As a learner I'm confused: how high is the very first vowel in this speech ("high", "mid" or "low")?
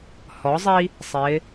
mid